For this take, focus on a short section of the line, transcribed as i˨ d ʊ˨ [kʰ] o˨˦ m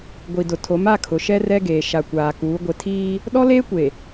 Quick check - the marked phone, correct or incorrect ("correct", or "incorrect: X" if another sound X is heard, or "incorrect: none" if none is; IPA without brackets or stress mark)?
incorrect: tʰ